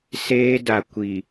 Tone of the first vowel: high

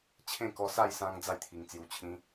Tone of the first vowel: falling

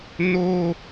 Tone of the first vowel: high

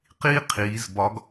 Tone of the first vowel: high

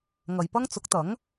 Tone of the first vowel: low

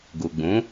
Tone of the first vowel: low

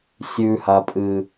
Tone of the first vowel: low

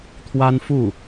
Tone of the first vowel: high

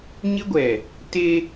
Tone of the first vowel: high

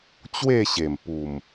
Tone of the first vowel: falling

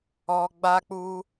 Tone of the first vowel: low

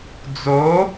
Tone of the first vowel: rising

